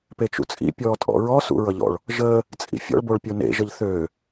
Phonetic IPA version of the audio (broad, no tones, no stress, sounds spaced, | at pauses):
p e t͡ʃ ṵ t͡sʼ ḭ pʲ ɔː tʼ ɔ̰ ɹ ɔ s ṵ ɹ ʌ ʎ ɔ̰ ɭ | ʒ əː | t͡sʼ ḭ fʲ ɔ̰ ɭ b o ɭ pʲ o n ḛ ʒ ʌ ʎ θ øː